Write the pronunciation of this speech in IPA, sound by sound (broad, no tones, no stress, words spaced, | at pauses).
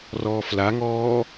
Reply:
rɔːflaŋɔː